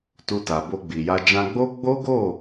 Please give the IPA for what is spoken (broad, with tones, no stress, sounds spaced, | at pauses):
t u˧ t a˨ b o˧ ɡ͡b i˨ j a˧ d͡ʒ ã˧ ɡ͡b o˦ ɡ͡b o˦ ɡ o˦˨